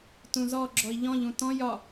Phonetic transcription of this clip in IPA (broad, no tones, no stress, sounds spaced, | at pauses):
t ũ z ɔ ɡ͡ǁ ɔ i̯ ʎ ɔ̃ ʎ ũ t ɔ̃ j ɒ